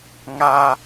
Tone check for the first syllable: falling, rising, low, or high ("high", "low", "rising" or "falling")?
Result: high